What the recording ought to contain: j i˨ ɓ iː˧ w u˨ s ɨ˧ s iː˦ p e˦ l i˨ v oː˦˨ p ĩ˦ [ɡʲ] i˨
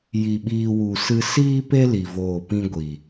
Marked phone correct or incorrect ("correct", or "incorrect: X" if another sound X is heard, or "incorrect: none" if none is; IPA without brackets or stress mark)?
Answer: incorrect: ɡʷ